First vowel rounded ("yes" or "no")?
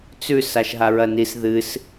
yes